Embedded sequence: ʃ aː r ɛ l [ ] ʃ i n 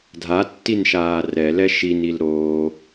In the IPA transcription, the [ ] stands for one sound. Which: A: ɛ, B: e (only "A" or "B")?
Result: A